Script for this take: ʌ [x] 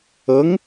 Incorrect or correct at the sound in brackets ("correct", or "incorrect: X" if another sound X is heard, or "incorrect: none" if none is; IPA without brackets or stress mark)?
incorrect: ŋ